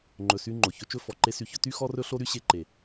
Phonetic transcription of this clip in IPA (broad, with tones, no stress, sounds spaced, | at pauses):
ŋ͡ǃ ɵ˨ s y˧ ŋ͡ǃ o˨ ç ɵ˧ t͡ʃ ɵ˦ f ɔ˨ ǃ e˦ s y˧ ç ɵ˦ t y˧ x ɔ˧ r ɵ˧ ɬ o˦ ɾ y˦ ɕ e˧ ǃ e˨